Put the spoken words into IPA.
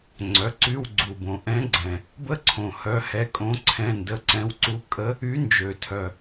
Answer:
ŋ͡ǀœ˩˥ǀy˧˥˧wɡ͡ǀu˨˩bõ˨˩ ʔɛ̃˧˥ɡ͡ǀɛ̃˨˩ | bə˧˥ǀʰõ˨˩ hœ˧˥hɛ˧˥˧ kʼõ˧˥ǀʰɛ̃˧˥˧ndə˧˥˧ǀɛ̃˧˥˧w ǀu˧˥kʼə˧˥ | y˧˥ nd͡ʒø˨˩tʰœ˨˩

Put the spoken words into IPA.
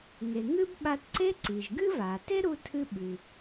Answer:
ŋe˩ŋɨ˥b ɓa˧tǀe˥ ǀi˩ʒɡɨ˥va˩ te˥ɾu˧tʰɨ˧ɓʉ˩

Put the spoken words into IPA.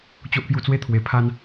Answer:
t͡ɕo˦ʔpju˧t͡swe˦ t̪ʰwe˨˩ pʰa˧n

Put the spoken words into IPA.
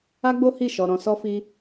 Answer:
a˦ɡ͡bo˦hi˦˨ ʃɔ˧ɾɔ̃˧sɔ˦fi˦

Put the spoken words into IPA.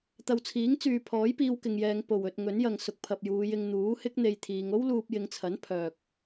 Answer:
t̪ɐ˨wt͡sʰiː˨˥ŋt͡syː˨ pʰɔː˨˥jpiː˧wkɪ˨ŋjɛː˨˧ŋ po˨wɵ˧t̚ ŋɵ˨˥njɐ˨ŋ sʊ˨k̚pʰɐ˨p̚juː˨˧jɪ˧ŋ n̪uː˨˥hɪ˥k̚ n̪e˧jt̪ʰiː˨˧ŋ o˥wluː˧p̚jɪ˨˧ŋt͡sʰɐ˨˥n pʰœː˨k̚

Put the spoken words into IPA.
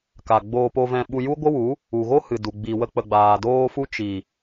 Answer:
ka˨ ɡ͡boː˧po˧vɛ̃˧ɓu˧ ju˦ ɡʷə˦wu˨˦ | u˨ɣo˦ hɨ˨du˨ɡ͡bi˨ wə˧k͡pə˨ɡ͡baː˨ doː˧fu˧ t͡ʃi˨

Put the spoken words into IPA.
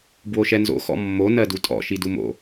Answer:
bwoʃɛnzo̰ xɔ̰mːo nɜdutʼɔ̰ ʃidumo̰

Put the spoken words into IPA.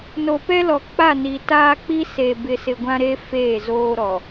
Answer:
no˨pɛ˦lɔ˨ k͡pa˦˨ni˨ taː˦k͡pi˦ se˨ bɪ˨sɪ˨ ɡʷã˦ɾe˦ feː˦˨zoː˦ ɾɔ˨

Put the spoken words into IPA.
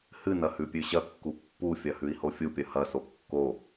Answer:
hɨnɐ hʉpʲʉɕɐkːu pːufʲɐ hʉi̯hofʲupʲɐ hɐso kːo

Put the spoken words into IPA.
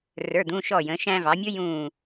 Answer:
rə˞˩˧˩d̪ũ˩˧˩ ʃɔ˧˩jə̃˩˧ ʃæ̃˧vɑ˩˧mʲʊ˦˥ jũː˧˩

